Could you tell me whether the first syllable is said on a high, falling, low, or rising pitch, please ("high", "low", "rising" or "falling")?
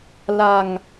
low